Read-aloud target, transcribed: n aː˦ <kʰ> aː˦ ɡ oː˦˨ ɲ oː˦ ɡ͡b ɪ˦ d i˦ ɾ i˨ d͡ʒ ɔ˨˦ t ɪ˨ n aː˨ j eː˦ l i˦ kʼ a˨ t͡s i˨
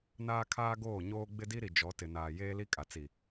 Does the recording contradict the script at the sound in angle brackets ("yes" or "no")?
no